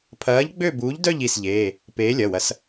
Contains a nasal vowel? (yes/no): no